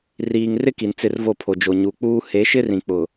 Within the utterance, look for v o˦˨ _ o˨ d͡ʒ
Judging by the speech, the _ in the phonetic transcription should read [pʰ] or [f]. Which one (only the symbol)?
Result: pʰ